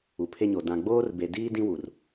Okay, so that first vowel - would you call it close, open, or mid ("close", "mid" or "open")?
close